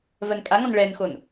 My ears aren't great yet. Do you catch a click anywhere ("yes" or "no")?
no